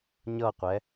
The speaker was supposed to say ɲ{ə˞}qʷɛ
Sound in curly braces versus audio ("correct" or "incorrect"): incorrect